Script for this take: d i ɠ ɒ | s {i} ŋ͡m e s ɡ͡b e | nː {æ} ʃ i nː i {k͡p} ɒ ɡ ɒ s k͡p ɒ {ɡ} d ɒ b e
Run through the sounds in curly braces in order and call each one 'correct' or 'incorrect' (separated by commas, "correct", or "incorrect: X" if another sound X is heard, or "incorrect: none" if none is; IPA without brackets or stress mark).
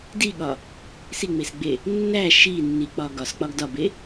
correct, correct, correct, correct